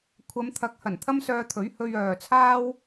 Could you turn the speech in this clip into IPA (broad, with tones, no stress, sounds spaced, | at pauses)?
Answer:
kʷʰ ɐ˨˧ m t̪ʰ ɐ˨˥ k̚ h ɐ˨˩ n t̪ʰ ɐ˥ m s œː˧ t̪ʰ ɵ˨˥ ɥ h ɵ˧ ɥ œː˨ t͡sʰ aː˥ w